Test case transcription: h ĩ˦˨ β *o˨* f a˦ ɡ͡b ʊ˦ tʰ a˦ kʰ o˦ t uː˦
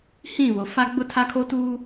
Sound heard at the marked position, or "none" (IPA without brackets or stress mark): o˨